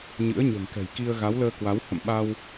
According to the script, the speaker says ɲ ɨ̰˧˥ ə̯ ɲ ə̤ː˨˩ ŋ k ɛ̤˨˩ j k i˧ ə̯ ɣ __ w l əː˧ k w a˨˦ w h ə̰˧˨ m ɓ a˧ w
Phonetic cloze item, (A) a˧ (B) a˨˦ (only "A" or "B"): B